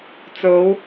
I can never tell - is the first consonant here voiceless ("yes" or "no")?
yes